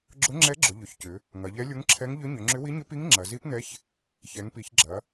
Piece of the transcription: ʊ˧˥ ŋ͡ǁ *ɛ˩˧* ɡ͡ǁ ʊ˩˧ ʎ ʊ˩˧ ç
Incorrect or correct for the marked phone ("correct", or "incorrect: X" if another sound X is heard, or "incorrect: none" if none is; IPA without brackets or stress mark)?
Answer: incorrect: ɛ˧˥